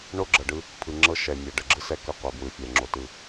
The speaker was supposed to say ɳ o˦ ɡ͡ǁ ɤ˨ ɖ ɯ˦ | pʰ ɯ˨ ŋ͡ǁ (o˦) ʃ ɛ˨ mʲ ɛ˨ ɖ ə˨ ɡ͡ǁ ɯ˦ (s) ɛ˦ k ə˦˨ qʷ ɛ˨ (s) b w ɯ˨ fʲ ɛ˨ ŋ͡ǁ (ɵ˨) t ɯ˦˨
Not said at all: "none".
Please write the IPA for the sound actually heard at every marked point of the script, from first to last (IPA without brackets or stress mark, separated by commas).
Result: ɤ˦, s, none, o˨